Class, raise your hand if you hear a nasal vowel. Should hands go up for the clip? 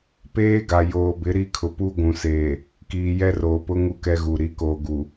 yes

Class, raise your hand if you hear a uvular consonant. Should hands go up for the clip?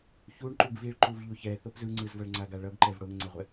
yes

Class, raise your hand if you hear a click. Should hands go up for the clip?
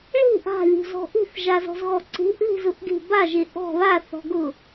yes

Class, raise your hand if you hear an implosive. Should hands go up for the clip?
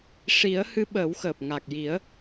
yes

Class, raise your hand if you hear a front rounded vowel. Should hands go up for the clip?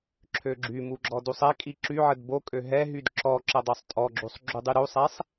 yes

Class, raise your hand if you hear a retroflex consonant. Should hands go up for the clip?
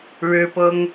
yes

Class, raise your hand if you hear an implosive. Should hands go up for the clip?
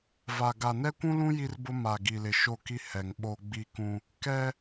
yes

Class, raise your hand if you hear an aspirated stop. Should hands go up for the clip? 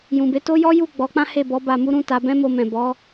no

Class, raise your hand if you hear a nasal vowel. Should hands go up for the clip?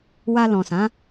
yes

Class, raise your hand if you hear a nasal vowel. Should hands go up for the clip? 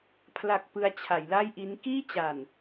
no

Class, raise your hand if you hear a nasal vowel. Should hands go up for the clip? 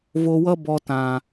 yes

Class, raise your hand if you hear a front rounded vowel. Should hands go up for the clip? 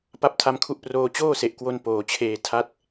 no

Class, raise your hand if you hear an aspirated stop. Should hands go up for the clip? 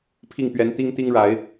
yes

